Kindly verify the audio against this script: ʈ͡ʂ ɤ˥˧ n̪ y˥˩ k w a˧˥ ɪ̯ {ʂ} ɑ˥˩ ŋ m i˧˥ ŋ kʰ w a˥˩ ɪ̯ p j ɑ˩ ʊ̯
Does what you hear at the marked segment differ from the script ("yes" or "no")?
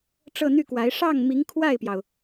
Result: no